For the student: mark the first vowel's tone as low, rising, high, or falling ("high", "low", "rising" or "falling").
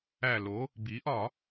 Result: low